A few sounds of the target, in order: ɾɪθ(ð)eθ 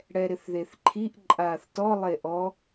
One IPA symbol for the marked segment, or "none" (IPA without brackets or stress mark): ð